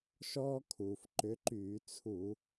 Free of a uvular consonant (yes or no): yes